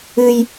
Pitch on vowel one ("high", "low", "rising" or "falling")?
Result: high